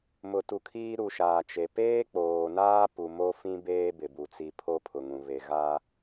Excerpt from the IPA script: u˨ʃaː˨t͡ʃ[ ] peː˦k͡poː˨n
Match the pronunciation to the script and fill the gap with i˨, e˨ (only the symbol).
e˨